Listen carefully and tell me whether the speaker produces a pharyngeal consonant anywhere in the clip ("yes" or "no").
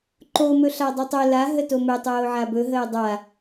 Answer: yes